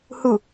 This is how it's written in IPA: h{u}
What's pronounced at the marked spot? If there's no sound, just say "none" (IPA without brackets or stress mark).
u